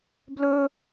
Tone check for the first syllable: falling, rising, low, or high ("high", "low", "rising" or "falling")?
high